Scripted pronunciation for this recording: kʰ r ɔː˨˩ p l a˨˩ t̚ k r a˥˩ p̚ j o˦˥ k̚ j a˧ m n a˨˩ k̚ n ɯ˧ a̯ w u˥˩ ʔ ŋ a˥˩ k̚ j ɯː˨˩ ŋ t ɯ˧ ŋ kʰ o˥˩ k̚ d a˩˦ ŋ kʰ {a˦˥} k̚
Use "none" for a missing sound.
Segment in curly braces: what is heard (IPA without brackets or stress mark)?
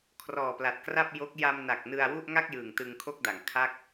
a˥˩